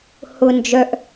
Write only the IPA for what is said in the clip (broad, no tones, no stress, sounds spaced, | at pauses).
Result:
h ʊ n d͡ʒ œ ʔ